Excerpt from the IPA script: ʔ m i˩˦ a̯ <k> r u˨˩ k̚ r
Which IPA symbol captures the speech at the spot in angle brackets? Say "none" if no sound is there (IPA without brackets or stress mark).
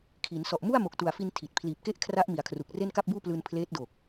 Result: kʰ